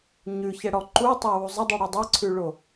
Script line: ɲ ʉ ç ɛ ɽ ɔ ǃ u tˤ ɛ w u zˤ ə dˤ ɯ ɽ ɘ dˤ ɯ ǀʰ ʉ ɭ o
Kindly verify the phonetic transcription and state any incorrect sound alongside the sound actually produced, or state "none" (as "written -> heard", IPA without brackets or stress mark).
ɘ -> ʉ